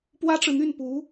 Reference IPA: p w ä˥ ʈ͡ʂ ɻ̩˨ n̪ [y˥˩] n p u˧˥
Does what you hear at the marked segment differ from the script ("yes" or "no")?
no